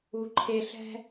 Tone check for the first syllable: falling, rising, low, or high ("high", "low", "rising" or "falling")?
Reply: low